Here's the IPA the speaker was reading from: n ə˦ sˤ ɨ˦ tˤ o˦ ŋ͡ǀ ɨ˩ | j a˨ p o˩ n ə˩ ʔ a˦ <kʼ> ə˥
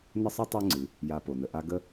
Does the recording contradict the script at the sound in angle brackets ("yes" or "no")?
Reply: yes